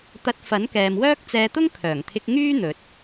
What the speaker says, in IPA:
t̪ ɐ˧ t̚ f ɐ˨˥ n k ɛː˨ m w œː˥ k̚ t͡s ɛː˧ t̪ ʊ˥ ŋ kʰ œː˨˩ ŋ t̪ʰ ɪ˧ k̚ ŋ yː˥ n̪ ɵ˨ t̚

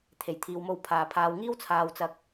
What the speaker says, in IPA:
t̪ʰ e˨˩ j t̪ʰ iː˨ w m o˧ w pʰ aː˨˩ pʰ aː˨ w ŋ iː˥ w t͡sʰ aː˧ w t͡s ɐ˧ k̚

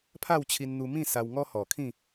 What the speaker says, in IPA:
pʰ a˥˧ w t͡ɕʰ i˧ n n̪ u˧ m ĩ˥˧ s a˧ w ŋ ɔ˦ h ɔ˨˩ kʰ ĩ˥˧

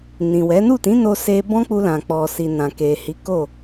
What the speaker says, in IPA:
n ĩ˨ w ɛ˨˦ n u˦˨ t ĩ˨˦ n o˦ s e˦ b ɔ̃˦ k͡p u˧ l ã˨ k͡p ɔ˨ s i˨ n ã˨ k e˨ h i˨˦ k o˦˨

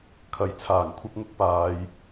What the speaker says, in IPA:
kʰ ɐ˨˥ j t͡sʰ aː˨˩ ŋ kʷʰ ɐ˥ p̚ ŋ ʊ˥ k̚ p aː˨˧ j

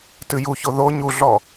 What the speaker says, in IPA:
t ɨ j u ç o ð o ɲ u ɮ ɔ

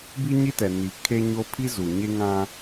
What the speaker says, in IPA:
b i˦ ɲ i˦ t ɛ˨ n i˨ kʰ e˦ ɲ o˦ pʰ i˦ z u˨ ɲ e˦ ŋ ã˦

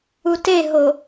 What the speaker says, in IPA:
u t e ɦ o

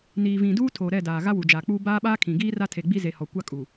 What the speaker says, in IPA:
n iː˨ v ĩ˨ d uː˦ tʰ oː˨ ɾ ɛ˦˨ d aː˨ ɣ a˦ w u˨ d͡ʒ aː˨ k͡p uː˦ b aː˦ ɓ aː˦ kʰ ĩ˨ ɡ iː˦ r a˦ tʰ e˨ ɡ͡b i˦ z e˨ h ɔ˨ kʷ a˦ kʼ u˨

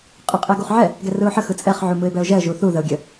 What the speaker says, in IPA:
qʼ ɯ qʼ ɛ ɡ u χ ʕ ɛ | ɡ ɛ r ɯ ʊ̯ ħ ə x ɯ t͡sʼ ɛ χ ʕ u m ɯ ɪ̯ b ɛ ʊ̯ ʒ ɛ ə̯ ʒ u θ u ð ə ʊ̯ ɡʲ ə

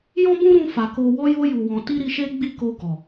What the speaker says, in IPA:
j ɔ̃˦ b ũ˦ ɾ ũ˧ f a˨ k o˧ w ɔ˦ j o˦ j u˧ w ɔ̃˧ t i˦ ɾ i˧ ʃ e˦ ɡ͡b i˦˨ k o˧ ɡ ɔ˨

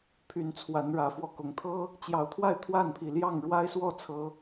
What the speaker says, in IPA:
pʰ y˨˦ n t͡sʰ w a˨˦ n ɻ ä˨˦ f w ɔ˧ k ʊ˨˦ ŋ t̪ʰ ɤ˦ | t͡ɕ j ɑ˨˦ ʊ̯ t̪ʰ w a˥˨ ɪ̯ t̪ʰ w a˥˨ n pʰ i˨˩ l j ɑ˥˨ ŋ ɻ w a˦ ɪ̯ s w ɔ˥˨ t͡sʰ ɤ˨˦

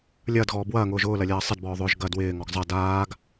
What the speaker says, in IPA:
lʲ ɐː d ɣ ɔː b w ɐː ŋ ʊː ʒ ʊː l ɐ lʲ ɐː sˤ ɪ d b ɔː ðˤ ʏː ʒ ɡ ɐ d w ɪː ŋ ɔ ɡ zˤ ɐ d aː ɡ

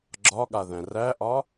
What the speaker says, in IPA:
ɡ͡ǁ ɒ ɠ a ð æ̃ r æ ʔ ɒ

